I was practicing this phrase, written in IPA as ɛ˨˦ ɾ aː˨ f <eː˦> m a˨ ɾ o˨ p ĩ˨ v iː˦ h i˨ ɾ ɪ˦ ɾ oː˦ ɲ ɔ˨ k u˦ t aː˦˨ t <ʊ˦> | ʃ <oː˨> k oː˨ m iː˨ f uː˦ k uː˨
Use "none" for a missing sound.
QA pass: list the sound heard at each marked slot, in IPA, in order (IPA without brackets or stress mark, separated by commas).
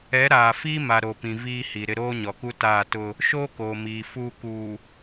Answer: iː˦, ʊ˦, oː˦